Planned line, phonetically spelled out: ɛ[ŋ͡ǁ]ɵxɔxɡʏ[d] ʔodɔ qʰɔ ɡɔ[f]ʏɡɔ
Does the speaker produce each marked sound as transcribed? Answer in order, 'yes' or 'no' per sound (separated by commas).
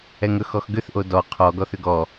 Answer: no, no, no